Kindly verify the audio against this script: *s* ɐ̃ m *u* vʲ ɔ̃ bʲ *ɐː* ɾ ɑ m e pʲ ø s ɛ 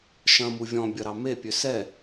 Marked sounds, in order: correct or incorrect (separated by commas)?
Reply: incorrect, correct, incorrect